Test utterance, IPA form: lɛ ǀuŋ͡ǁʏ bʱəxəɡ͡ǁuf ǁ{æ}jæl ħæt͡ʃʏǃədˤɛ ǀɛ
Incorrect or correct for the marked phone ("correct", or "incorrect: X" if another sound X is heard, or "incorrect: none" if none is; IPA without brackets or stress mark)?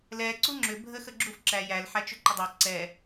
correct